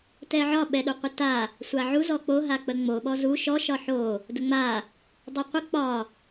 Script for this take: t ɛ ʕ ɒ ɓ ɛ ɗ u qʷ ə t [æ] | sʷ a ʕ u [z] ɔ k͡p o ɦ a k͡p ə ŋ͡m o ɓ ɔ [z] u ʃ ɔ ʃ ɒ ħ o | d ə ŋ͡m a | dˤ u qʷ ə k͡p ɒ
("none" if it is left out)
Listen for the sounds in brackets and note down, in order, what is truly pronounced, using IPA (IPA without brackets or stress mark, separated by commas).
a, z, z